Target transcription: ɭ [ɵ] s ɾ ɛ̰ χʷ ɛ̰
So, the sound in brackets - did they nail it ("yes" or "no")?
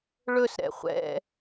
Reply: yes